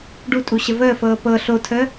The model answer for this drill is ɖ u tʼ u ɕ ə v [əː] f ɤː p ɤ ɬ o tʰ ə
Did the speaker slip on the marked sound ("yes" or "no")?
no